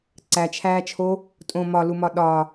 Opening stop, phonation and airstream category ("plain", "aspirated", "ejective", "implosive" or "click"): click